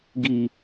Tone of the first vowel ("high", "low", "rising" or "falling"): low